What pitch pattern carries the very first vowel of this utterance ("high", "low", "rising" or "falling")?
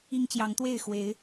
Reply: high